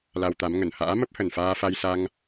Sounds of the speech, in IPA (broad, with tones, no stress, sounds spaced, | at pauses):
l a˧ w t̪ a˨˦ m ŋ ə˧˩ n h a̰ː˧˥ m ə˦˥ p̚ h ə˨˩ n f aː˧ f a˧ j s a˧ ŋ